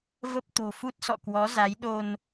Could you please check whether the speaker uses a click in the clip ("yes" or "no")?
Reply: no